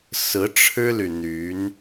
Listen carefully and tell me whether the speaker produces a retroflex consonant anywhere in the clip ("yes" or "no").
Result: yes